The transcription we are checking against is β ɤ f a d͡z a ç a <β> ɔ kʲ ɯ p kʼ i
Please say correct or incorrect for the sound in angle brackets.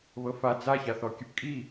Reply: incorrect